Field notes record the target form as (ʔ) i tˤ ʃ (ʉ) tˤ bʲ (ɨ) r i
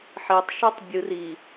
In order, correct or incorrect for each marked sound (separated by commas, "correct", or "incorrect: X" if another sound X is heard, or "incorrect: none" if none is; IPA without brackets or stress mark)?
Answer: incorrect: ħ, correct, correct